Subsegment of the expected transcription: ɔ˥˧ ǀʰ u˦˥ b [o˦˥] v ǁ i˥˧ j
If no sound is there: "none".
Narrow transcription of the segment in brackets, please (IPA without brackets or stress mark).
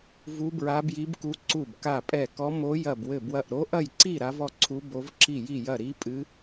o˦˥